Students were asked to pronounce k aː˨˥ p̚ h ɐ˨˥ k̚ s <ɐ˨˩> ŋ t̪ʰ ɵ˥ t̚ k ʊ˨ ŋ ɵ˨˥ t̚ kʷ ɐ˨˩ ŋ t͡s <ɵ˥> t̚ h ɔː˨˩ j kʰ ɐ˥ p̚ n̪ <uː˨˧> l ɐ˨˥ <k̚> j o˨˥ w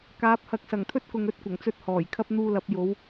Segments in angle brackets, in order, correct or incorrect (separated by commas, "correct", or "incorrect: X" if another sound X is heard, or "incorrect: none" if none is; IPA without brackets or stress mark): correct, correct, incorrect: uː˧, incorrect: p̚